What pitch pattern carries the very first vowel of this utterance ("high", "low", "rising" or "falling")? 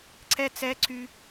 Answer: high